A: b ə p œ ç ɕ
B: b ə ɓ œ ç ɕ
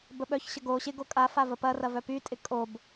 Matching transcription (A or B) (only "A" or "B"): B